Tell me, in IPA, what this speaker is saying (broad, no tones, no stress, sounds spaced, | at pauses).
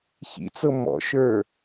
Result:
ç ḭ t͡s ɤ m ɔ̰ ʃ ə˞